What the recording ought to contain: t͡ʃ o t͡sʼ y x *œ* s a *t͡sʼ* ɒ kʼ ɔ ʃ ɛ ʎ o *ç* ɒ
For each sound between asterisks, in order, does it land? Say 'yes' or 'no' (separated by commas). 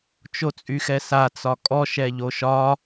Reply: no, no, no